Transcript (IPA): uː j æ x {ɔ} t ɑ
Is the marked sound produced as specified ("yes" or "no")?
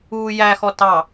yes